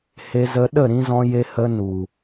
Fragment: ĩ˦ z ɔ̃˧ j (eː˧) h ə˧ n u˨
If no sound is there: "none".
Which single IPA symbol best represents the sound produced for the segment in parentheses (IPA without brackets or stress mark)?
e˧